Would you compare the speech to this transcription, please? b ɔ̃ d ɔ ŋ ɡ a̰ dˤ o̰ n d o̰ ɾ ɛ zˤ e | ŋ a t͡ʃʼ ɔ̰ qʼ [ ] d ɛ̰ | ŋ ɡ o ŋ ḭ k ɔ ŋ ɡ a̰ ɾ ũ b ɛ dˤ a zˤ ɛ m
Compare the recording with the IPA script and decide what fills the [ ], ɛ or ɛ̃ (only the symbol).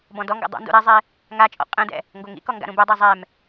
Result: ɛ̃